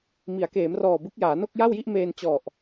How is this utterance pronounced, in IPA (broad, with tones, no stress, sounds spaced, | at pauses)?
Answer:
m i˩˦ a̯ k eː˩˦ m r ɔː˨˩ b ɯ˦˥ k̚ j aː˩˦ n o˥˩ k̚ j a˥˩ w j i˥˩ ʔ m eː˧ n t͡ɕ ɔ˨˩ ʔ